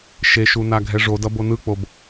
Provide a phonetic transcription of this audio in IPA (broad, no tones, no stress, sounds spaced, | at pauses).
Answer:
ʃ e ʃ u n a ɡʱ ɛ ʐ o d ʌ b o n ɯ k͡p o b